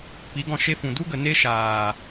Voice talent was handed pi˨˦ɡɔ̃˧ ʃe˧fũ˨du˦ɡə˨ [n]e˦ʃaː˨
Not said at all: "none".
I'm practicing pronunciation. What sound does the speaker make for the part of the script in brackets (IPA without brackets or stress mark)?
n